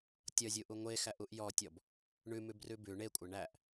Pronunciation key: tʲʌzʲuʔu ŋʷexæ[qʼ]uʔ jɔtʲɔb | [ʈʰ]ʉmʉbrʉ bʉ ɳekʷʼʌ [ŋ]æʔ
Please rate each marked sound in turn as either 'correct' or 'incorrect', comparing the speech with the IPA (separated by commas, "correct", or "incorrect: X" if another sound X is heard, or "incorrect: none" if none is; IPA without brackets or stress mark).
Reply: incorrect: ʔ, incorrect: ɳ, incorrect: ɳ